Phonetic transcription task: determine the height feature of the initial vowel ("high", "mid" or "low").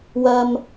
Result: low